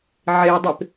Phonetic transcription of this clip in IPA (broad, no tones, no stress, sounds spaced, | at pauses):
ʕ e dˤ e p